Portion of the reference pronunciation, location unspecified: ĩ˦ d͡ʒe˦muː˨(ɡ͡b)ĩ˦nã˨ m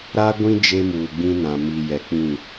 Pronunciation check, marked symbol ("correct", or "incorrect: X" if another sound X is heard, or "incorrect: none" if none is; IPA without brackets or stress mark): correct